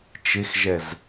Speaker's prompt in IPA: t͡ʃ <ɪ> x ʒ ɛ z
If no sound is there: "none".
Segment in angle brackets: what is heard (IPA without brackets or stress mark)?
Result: ɪ